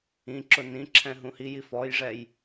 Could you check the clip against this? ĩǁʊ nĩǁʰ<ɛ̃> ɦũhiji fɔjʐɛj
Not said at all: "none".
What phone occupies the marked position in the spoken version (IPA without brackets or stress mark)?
ɛ̃